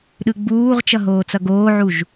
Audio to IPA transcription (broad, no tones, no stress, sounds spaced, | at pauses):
ɗ ɯ ɡ͡b uː ʁ t͡ʃ ʌ ɦ oː t͡s ʌ ɡ oː ʕ u ʒ